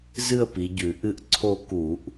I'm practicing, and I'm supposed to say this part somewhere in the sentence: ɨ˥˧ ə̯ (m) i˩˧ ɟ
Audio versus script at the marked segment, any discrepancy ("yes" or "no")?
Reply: yes